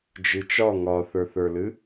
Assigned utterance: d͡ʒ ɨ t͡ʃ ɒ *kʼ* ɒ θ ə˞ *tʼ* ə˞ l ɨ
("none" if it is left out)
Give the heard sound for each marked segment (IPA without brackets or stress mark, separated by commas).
ŋ, θ